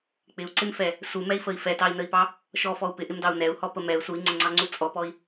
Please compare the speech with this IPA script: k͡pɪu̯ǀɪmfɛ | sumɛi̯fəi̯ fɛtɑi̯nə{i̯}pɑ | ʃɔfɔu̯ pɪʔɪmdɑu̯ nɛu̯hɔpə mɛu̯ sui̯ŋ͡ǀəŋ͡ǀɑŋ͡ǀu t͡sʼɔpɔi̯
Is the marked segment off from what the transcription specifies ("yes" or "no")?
no